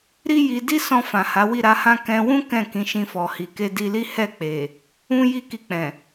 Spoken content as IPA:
ɾ i˦ j i˧ d i˦ s ɔ̃˧ f ã˨ h a˨˦ w i˦˨ ɾ a˨˦ h ã˦ k ɛ̃˧ w ũ˦ k ɛ̃˦˨ k ĩ˨˦ ʃ ĩ˧ f ɔ˨ h i˨ k e˧ d i˧ l i˦ h ɛ˦˨ k͡p e˨ | ũ˦ j i˦˨ k i˧ k͡p ɛ̃˨

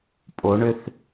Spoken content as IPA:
pʼ o ɳ ʏ θ

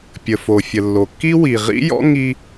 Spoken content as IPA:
pʲ ə˩ f o˩ fʲ ə˩ lː o˩ kː i˥ w i˩ ʁ ḭ˥ j ɔ̰˥ ŋ i˥

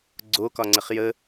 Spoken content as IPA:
ɡ͡ǀ o k ɒ ŋ͡ǀ ə χ j ə

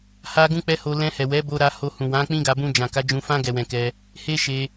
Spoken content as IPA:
h a˦ ɡ ũ˦ k͡p ɛ˦ h o˧ l ɛ̃˧ h ɛ˨ w ɛ˨˦ b o˧ ɾ a˧ h o˧ h ũ˨ w ã˨˦ k͡p ĩ˦ ɡ a˧ b ũ˧ d͡ʒ ã˨ k a˨˦ d͡ʒ ũ˧ f ã˦ ɡ ɛ˧ w ɛ̃˧ k ɛ˧ | h e˦ ʃ e˧

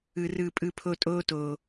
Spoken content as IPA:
ɯ˧ r ɯː˧ pʼ ɯ˦ pʰ o˦ tʼ oː˦ t oː˧

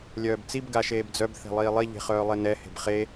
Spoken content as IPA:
lʲ œː b t͡s i b ɡ a ʃ eː b d͡z œ b θ e̤ lˠ iː lˠ i ʎ e̤ χ œː lˠ e n ɛ h e̤ b χ e

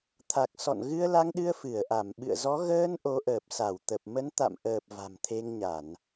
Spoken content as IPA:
t̪ʰ a˨˩ k̚ s ɔ̰˧˨ n ɣ ɨ˧ ə̯ l a˧ ŋ ɗ ɨ˧ ə̯ f ɨ˧˩ ə̯ ʔ a˧˩ m ɓ ɨ̰˧˨ ə̯ z ɔ˨˦ ɣ əː˧ n ʔ o˨˦ ʔ əː˨˩ p̚ s a˧˩ w t̪ ə˨˩ p̚ m ə˨˦ n t̪ a̰˧˨ m ʔ əː˨˩ p̚ v a̤˨˩ m t̪ʰ e˧ ŋ ɲ a˧˩˨ n

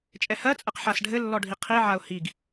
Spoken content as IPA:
t͡ʃʼ ɛ h ɜ t͡sʼ ɛ q ħ a s ɖʱ ɘ lː ɔ ɖʱ i qʰ i ʕ a ʊ̯ h i ɡ

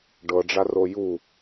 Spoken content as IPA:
ɖ ɤ ɖ͡ʐ a r o j u

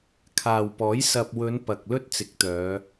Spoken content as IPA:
kʰ aː˨ w p ɔː˨˥ j s ɐ˨ p̚ w ɵ˨˧ n p ɐ˨ k̚ l ɵ˥ t̚ t͡s ɪ˨˥ k̚ t̪ œː˨˧

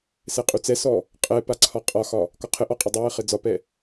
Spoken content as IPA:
s ɛ qʼ u t͡s ɛ s ɔ | qʼ ɛ p a ǀʰ ɒ qʼ ɒ x ɒ | k ɒ qʰ ɘ ʔ ɔ qʼ ɘ dˤ ɘ w ɘ χ ɘ d͡z ɒ p ɛ

